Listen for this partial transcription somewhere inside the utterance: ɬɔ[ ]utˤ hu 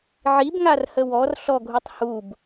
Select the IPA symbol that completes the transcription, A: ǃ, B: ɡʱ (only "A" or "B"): B